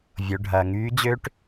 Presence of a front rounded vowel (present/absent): present